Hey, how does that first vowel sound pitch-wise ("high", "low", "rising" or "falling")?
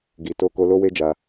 low